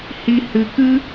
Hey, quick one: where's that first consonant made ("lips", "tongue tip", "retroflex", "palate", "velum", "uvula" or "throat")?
throat